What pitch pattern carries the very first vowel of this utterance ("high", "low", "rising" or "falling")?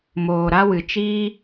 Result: low